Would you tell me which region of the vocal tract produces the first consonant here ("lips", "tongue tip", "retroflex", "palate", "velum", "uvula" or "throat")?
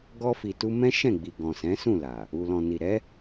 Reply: velum